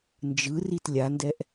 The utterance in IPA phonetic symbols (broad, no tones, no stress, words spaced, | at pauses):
nd͡ʒɯ ritlʲandɛʔ